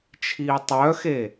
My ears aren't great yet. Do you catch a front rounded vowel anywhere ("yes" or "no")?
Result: yes